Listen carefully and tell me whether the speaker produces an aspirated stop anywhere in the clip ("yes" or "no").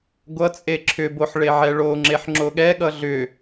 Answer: yes